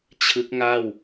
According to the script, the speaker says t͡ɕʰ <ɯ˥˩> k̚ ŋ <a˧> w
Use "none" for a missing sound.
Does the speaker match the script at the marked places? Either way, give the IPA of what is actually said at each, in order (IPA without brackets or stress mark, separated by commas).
ɯ˦˥, a˥˩